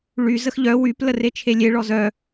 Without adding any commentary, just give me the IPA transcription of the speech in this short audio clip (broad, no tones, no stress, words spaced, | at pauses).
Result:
ɭy zəxʎœ wyp ləret͡ʃʰelʲe ɭɔzœ